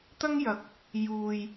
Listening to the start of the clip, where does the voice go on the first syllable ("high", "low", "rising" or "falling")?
high